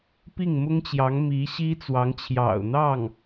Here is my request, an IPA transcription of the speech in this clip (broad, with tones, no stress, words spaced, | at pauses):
pi˥˩ŋmʊ˥ŋt͡ɕjɑ˧˥ŋ mi˧˥ ɕi˥t͡swɑ˧˥ŋt͡ɕʰjɑ̰˨˩ʊ̯ n̪ɑ˥˩ŋ